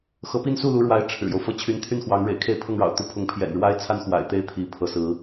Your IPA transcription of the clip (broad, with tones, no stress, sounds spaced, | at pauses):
x ɤ˧˥ p i˥˧ n s u˥˩ l u˧˥ ɻ w a˧˥ ɪ̯ ʈ͡ʂʰ ɻ̩˨˩ j o˦ ʊ̯ f ɤ˥˩ t͡ɕʰ y˧˥ n t̪ʰ y˥˩ n x w ɑ˧˥ ŋ ɻ ḛ˨˩ ɪ̯ kʰ e˥˧ ɪ̯ pʰ ɤ˥˩ ŋ ɻ ɑ̰˨˩ ʊ̯ t̪ u˧˥ pʰ ʊ˥˩ ŋ pʰ j ɛ̰˨˩ n ɻ w a˥ ɪ̯ t͡sʰ a˥ n x w a̰˨˩ ɪ̯ t̪ e˥ ɪ̯ t̪ʰ i˧˥ pʰ ɤ˧˥ s ɹ̩˧˥